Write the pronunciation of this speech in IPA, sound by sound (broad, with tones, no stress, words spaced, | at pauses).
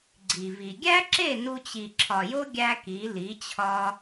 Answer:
ɡ͡ǀi˨vi˨ ɡʲæ˦ǁe˦˨ nu˧t͡ɕi˨ǁʰɒ˨jo˦ ɡʲæ˦ki˨˦li˨˦t͡ɕʰɒ˦